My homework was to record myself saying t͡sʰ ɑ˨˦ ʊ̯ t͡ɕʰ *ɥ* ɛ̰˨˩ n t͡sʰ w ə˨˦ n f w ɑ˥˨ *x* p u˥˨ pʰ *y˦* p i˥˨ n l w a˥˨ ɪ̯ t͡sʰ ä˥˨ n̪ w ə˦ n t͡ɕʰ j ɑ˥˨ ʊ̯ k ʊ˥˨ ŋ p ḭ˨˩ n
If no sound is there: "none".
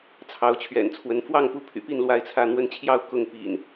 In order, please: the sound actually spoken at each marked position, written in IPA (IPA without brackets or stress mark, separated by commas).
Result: ɥ, ŋ, y̰˨˩